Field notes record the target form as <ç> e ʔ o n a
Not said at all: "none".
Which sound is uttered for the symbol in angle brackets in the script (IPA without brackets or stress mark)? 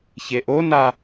ç